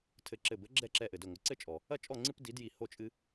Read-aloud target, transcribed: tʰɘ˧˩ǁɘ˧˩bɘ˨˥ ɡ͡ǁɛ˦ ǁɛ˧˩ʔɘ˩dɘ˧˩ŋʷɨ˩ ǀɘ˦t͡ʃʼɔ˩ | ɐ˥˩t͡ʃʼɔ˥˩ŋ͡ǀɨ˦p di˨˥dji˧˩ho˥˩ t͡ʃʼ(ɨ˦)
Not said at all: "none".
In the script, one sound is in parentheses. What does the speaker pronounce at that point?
ɨ˦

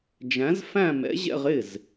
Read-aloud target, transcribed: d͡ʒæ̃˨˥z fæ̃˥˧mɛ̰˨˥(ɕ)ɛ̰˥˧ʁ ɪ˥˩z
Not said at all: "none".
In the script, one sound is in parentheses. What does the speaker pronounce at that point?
ʑ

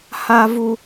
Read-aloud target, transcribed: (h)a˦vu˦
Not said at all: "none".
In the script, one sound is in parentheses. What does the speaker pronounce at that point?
h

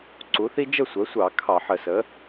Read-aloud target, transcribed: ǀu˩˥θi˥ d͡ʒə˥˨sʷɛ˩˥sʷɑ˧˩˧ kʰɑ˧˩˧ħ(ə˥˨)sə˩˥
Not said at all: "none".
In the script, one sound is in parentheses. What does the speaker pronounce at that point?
ə˧˩˧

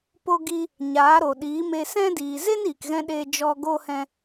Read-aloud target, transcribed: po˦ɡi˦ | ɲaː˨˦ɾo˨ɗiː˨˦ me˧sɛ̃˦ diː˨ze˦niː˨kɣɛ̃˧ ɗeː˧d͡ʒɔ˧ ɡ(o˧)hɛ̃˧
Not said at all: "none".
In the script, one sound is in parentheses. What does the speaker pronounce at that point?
o˧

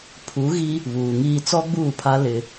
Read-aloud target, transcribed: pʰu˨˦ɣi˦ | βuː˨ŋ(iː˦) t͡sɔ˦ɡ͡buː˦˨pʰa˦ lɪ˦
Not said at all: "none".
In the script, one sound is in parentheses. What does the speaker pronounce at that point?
iː˦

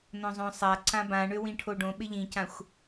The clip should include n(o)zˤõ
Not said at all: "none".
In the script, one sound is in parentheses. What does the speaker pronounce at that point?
õ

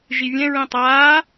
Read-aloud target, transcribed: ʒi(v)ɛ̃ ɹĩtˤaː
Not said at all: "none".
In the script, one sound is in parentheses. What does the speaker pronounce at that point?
vʲ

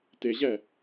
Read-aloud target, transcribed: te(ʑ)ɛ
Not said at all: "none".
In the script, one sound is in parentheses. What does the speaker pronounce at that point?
ʑ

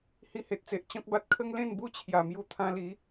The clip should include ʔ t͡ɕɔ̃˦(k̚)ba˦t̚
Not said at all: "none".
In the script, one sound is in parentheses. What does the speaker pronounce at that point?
k̚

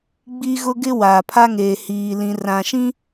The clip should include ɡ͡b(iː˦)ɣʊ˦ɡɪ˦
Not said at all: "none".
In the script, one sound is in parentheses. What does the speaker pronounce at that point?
i˦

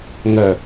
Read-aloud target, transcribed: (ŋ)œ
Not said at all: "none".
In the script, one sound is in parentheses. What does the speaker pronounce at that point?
ŋ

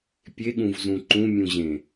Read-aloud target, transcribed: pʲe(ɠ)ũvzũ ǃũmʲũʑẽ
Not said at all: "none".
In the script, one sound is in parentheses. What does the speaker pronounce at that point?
ɠ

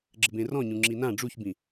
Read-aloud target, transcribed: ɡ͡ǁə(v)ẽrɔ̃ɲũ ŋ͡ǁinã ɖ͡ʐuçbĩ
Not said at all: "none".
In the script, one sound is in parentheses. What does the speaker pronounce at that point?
b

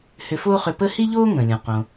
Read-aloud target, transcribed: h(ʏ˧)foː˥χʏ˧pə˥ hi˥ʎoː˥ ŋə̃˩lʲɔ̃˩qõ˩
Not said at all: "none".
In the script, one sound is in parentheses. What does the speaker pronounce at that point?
ʏ˧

